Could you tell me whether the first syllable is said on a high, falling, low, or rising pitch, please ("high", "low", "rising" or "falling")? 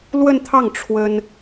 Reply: falling